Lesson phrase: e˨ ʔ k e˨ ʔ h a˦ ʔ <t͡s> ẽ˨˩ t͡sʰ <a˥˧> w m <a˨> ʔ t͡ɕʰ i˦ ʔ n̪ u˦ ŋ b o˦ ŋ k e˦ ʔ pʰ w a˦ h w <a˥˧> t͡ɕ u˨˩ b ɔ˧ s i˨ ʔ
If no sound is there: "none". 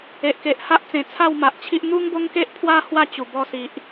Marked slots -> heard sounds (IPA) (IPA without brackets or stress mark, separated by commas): t͡s, a˥˧, a˨, a˥˧